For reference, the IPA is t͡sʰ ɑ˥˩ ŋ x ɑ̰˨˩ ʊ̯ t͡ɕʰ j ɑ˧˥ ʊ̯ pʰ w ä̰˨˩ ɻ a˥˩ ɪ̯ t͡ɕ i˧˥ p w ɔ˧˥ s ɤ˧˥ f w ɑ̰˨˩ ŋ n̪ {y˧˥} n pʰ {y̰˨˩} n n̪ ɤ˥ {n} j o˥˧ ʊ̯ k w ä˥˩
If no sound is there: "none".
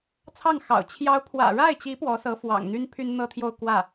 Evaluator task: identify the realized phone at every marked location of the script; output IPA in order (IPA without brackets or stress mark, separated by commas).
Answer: y˥, y˥, t̪ʰ